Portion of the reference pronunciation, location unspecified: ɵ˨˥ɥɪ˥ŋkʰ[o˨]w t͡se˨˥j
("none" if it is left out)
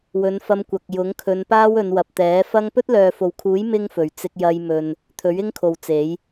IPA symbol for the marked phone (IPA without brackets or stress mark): o˨